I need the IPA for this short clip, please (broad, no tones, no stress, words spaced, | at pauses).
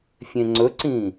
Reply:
fʲẽŋ͡ǀɵǀĩ